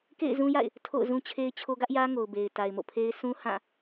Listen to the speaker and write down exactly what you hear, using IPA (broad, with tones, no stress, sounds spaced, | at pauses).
k ḛ˦˨ ɪ̯ z ũ˦ j a̰˦˨ ɪ̯ | tʰ o̰˦˨ ʊ̯ z ũ˦ t͡ɕʰ e˦ ɪ̯ t͡ɕʰ o˦ ɡ ä˦ ʔ j ä˦ ŋ o˨ ʊ̯ b e˨ ɪ̯ t a˨ ɪ̯ m o̰˦˨ pʰ e˦ ɪ̯ sʰ ũ˦ h ã˦˨